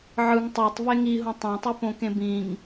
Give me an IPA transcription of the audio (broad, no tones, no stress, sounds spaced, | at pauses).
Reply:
ʕ ɯ ŋ tˤ æ tˤ v e ŋ i ɦ ũ tˤ æ̃ tˤ y p õ k ẽ b ĩ ŋ